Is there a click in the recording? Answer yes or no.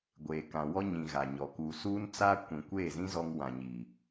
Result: no